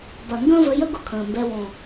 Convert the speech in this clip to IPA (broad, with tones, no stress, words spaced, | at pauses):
bɐ˨ŋɡə̃ː˦və˧jə˦ ɡʊ˦kʰə̃ː˨mbɛ˧ wɔ̃˨